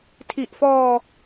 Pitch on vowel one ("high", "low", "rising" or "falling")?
low